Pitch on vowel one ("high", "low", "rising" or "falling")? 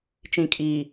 low